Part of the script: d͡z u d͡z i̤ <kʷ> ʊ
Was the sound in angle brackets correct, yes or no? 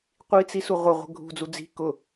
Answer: no